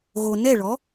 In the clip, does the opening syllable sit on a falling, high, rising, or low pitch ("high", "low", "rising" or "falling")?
low